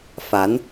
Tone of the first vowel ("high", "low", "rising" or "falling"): rising